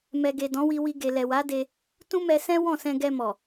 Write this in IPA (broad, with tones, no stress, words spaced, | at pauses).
mɛ˨ɡe˨ dɔ̃˨˦wi˧wi˧ ɡe˨lɛ˨wa˨˦de˧ | tũ˦mɛ˧sɛ̃˦ wɔ̃˦˨sɛ̃˧ɡɛ˧mɔ˨